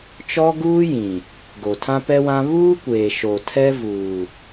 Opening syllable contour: high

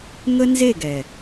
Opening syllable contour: high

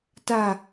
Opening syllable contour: low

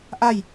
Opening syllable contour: falling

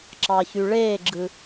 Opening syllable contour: low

